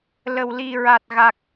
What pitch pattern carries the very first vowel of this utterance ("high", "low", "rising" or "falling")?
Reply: low